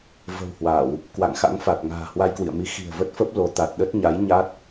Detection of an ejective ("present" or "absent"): absent